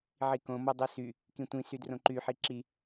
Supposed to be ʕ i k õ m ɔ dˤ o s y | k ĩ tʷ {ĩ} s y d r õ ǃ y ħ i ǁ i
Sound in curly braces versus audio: correct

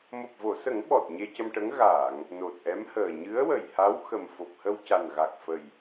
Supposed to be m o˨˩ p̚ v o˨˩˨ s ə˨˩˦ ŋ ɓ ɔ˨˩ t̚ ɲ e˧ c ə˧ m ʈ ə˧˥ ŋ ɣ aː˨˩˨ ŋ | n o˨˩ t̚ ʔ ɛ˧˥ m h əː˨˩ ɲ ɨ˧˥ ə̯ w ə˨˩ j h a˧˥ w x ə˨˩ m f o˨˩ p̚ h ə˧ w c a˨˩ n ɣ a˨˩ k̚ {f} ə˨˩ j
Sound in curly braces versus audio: correct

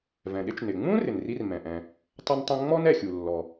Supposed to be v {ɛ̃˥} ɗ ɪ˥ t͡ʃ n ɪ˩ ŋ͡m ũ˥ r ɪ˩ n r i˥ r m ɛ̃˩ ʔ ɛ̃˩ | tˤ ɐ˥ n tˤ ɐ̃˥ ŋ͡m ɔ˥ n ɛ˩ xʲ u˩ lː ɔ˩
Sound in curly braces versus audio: incorrect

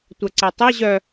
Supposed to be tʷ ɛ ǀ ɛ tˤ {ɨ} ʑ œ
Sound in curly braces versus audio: incorrect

